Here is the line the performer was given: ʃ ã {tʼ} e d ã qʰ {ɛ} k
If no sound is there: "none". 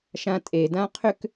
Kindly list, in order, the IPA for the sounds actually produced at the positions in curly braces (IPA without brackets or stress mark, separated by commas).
tʼ, ʏ